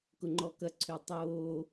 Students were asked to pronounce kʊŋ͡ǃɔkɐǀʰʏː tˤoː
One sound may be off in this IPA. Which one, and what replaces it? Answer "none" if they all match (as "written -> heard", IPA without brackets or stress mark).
none